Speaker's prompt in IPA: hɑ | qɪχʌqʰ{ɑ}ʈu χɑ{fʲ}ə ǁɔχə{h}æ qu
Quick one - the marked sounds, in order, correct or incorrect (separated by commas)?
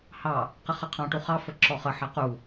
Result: incorrect, incorrect, incorrect